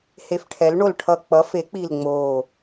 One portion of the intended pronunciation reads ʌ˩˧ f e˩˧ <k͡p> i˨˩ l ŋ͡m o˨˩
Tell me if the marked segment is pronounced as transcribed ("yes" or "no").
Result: yes